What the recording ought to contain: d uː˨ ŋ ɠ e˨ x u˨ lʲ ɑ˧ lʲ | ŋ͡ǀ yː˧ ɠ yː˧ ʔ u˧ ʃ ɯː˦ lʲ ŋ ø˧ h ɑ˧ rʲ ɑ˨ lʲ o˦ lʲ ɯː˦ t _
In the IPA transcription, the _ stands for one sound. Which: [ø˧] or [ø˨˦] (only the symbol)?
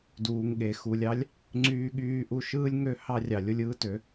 ø˨˦